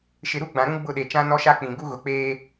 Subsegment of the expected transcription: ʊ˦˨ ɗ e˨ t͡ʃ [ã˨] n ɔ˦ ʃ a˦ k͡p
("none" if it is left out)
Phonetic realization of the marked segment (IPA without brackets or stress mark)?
ã˦